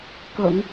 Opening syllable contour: low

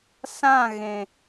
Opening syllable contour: falling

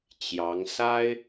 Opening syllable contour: rising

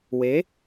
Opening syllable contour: rising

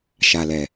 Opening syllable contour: low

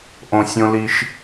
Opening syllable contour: low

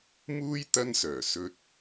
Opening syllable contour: high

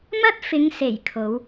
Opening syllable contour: high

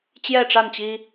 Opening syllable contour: falling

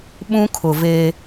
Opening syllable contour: high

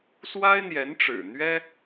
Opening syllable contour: high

